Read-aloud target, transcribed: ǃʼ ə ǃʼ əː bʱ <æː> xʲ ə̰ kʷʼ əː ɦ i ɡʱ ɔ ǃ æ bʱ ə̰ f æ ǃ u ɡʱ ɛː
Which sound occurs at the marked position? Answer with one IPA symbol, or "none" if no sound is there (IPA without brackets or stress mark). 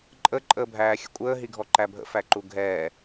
æː